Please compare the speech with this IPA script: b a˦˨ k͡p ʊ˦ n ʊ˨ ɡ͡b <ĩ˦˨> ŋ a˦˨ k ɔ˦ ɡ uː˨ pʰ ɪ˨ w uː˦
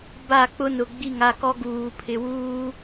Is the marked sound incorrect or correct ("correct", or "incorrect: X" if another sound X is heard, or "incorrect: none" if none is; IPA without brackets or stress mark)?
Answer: incorrect: i˦˨